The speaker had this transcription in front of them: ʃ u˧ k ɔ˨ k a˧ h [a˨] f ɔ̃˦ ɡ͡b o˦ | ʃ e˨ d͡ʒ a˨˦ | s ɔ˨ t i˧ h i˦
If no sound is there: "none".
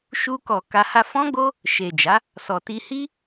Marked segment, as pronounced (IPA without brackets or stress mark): a˧